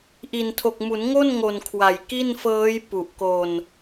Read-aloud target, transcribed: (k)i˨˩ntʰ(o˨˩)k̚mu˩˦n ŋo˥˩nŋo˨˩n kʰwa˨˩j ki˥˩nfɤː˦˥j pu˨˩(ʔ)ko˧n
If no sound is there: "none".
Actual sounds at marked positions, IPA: ʔ, o˨˩, ʔ

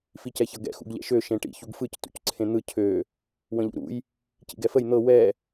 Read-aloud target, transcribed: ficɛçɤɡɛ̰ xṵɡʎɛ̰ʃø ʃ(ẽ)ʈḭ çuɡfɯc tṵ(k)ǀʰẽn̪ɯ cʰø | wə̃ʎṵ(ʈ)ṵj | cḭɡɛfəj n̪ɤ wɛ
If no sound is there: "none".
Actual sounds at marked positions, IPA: ẽ, c, ɾ

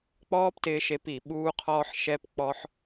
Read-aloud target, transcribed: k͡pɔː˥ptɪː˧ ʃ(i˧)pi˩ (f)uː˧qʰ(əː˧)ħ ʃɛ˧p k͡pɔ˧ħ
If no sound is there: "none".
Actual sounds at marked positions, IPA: e˧, ɓ, ɔː˧

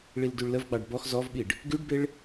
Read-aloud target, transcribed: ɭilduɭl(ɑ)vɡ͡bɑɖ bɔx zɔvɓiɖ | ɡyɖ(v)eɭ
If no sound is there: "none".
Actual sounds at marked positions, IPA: ə, b

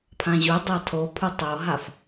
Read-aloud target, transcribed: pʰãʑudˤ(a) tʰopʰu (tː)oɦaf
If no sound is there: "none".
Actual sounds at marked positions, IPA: a, tˤ

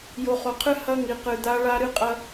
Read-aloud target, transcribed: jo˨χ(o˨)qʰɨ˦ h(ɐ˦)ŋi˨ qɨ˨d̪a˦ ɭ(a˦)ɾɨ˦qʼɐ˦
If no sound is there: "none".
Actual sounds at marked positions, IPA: o˨, ɐ˦, a˦

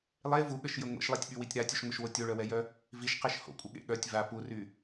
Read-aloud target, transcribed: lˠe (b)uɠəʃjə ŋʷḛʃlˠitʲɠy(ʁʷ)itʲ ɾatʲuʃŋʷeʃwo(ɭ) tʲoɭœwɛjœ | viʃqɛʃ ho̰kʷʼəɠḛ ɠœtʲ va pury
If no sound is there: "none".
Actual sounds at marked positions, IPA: v, w, none

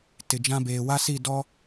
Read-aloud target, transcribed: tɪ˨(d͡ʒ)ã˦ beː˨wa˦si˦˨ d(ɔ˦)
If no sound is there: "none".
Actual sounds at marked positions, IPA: d͡ʒ, ɔ˦

